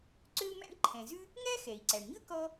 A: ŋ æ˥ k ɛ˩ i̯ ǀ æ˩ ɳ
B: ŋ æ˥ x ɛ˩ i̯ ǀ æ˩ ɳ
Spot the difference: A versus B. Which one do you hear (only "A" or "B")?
B